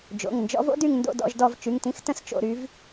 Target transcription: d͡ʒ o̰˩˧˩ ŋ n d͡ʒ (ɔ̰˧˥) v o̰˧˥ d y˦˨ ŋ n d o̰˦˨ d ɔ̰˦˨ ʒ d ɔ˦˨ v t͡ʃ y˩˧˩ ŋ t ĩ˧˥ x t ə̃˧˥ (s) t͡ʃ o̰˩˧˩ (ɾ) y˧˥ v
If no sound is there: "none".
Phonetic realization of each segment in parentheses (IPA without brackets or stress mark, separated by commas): ɔ̰˧˥, s, ɾ